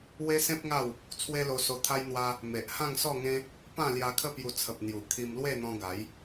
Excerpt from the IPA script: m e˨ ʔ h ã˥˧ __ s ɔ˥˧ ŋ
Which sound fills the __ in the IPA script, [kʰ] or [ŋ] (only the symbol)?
ŋ